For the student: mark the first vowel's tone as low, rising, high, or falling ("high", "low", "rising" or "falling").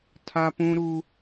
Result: high